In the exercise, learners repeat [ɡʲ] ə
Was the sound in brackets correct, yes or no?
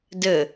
no